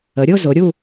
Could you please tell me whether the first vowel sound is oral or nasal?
oral